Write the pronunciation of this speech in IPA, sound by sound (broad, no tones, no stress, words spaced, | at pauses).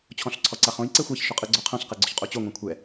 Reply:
t͡ɕʰɔ̃ɬǀʰɔǀaχõj ǀɛxʷaç ʃʊqʼɯɡ͡ǀoqʰɐ̃ɬ qɛɡ͡ǀʊçqʼot͡ɕo ŋʷɛ̃kʷʰɛ